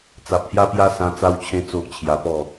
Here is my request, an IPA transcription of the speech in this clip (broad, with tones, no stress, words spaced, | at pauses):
t͡sa˨p̚hja˦pja˦ sã˧t͡sa˧wt͡ɕʰẽ˧ t͡so˦ʔt͡ɕʰja˧pɔ˥˧